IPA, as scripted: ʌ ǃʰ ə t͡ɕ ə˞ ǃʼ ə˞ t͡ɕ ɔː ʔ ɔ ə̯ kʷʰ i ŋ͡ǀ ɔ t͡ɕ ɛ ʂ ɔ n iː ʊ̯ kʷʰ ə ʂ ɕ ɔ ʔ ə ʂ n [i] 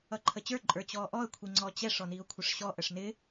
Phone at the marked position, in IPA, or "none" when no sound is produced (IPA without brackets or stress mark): ɪ